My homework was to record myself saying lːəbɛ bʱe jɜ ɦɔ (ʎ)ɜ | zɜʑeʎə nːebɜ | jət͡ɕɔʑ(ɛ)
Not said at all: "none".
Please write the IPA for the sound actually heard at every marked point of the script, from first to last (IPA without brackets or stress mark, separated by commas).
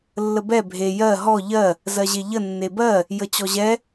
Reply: ʎ, ɛ